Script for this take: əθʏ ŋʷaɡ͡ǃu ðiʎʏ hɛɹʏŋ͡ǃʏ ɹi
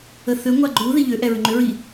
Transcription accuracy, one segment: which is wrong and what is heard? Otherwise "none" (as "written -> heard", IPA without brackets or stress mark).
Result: h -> ʔ